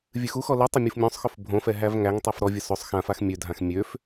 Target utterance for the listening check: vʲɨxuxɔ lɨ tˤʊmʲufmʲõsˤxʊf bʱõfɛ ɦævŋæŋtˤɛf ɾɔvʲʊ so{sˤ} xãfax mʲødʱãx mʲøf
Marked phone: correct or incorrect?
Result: correct